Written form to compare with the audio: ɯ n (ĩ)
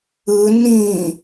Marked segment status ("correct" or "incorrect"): correct